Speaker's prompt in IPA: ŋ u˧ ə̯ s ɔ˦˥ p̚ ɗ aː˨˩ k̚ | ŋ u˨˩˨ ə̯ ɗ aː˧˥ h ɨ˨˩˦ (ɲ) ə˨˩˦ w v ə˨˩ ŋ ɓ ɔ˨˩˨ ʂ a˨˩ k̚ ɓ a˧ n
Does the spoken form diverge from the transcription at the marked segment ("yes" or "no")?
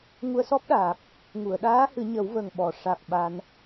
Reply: no